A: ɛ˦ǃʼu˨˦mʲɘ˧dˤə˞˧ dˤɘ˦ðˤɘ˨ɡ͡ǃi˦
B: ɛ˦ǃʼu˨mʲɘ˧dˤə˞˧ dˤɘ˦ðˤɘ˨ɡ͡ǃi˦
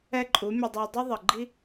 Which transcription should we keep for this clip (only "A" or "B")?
A